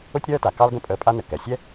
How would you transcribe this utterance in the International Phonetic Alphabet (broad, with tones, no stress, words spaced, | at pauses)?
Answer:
ʊ˥tʲɾœː˥ta˩ kɑ˥lɡə̃˥ pʼəː˧pʼa˥ nə˩kɛ˩sʲɛ˥